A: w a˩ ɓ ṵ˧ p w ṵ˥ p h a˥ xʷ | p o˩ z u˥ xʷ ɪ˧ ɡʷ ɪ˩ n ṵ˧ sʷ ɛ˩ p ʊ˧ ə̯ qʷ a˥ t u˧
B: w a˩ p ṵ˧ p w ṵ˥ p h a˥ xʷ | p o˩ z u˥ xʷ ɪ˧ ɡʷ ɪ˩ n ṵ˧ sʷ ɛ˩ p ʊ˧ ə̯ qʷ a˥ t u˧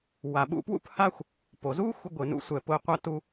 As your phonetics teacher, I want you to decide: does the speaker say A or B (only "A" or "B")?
A